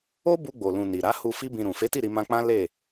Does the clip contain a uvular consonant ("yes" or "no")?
no